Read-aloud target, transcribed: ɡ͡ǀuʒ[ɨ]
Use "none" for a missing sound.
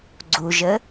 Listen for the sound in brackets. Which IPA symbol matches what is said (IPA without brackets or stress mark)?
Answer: ə